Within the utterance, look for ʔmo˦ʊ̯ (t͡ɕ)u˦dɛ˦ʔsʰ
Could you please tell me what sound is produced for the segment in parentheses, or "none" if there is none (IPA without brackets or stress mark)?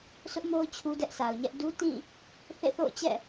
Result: t͡ɕʰ